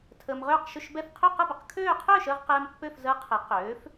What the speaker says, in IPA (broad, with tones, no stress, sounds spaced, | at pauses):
tʰ əː˧ m ʁ øː˥˧ q ʃ ɵ˥˧ ʃ b ɛ˥˧ f qʰ ø˥˧ q ə˥˧ b ə˧ q kʰ øː˥˧ qʰ øː˥˧ ʃ əː˥˧ ʁ q ɛː˧ m pː ø˥˧ f z əː˦˥ qʰ ɛ˨˥ q øː˨˥ f